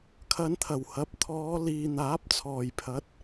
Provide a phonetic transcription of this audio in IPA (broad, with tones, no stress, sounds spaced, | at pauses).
kʰ ɐ˨˧ n t̪ʰ ɐ˨˩ w h ɐ˨˥ p̚ t̪ʰ ɔː˨˧ l iː˨ n̪ aː˨˥ p̚ t͡sʰ ɔː˨˩ j pʰ ɐ˨˥ t̚